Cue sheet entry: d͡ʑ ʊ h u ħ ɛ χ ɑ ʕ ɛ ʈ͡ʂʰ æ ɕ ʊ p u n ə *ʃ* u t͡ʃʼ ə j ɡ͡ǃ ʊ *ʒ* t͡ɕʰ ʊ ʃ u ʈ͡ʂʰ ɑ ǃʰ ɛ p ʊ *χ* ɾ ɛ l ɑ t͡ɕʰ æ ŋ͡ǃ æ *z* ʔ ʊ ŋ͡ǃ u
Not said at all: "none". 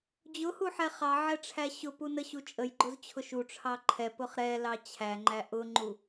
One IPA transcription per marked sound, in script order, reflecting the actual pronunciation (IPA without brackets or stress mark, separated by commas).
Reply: ɕ, z, χ, none